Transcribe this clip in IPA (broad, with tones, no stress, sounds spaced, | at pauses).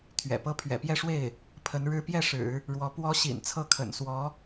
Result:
t̪ʰ ɥ ɛ̰˨˩ p ɤ˥ pʰ ɥ ɛ̰˨˩ p j ɛ˥˧ ʂ w e˥˩ ɪ̯ | pʰ ə˧˥ n ɻ ɻ̩˥ p j ɛ˥˩ ʂ ɻ̩˨˩˦ | ɻ w ɔ˧˥ p w ɔ˧˥ ɕ ḭ˨˩ n t͡sʰ ɤ˥˩ kʰ ə̰˨˩ n s w ɔ˧˥